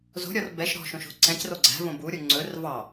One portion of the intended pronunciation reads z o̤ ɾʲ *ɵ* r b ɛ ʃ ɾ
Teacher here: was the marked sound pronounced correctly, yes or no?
no